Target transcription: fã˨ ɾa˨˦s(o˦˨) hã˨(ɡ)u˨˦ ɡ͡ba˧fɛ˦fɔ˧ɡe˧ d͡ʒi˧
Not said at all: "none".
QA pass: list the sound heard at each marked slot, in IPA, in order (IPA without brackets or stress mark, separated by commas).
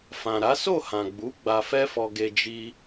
o˦˨, ɡ͡b